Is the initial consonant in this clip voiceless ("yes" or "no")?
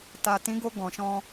yes